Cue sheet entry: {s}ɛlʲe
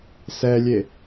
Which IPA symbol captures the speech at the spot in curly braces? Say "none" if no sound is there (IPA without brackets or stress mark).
s